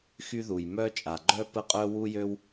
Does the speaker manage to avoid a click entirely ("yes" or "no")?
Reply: no